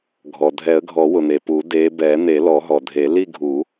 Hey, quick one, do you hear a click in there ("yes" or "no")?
no